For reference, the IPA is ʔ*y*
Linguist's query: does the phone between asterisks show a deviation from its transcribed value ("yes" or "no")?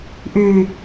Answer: no